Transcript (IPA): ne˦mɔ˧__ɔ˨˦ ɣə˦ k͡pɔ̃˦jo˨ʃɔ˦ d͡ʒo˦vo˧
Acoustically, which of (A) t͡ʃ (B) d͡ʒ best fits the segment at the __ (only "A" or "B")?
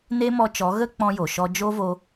A